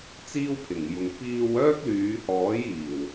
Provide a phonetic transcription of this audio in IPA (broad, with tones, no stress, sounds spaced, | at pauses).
t͡s iː˥ w pʰ ɪ˨˩ ŋ j ʊ˨ ŋ p iː˧ w œː˥ k̚ l yː˨˧ h ɔː˨˥ j iː˨˩ w